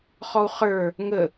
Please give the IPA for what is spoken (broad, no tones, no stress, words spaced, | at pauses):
χɔu̯χə˞ | ŋə